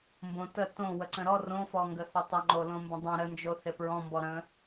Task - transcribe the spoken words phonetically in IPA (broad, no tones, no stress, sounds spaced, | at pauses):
m b õ t ə t õ w ə ǀ ə̃ ɾ ɔ r õ f ɔ ŋ ɡ ə θ ɪ tˤ ɪ ŋ͡ǃ o l õ m b ə̃ dˤ õ ɾ ə n d͡ʒ o θ ɪ p ɹ ɔ̃ m b ɔ ɾ ə̃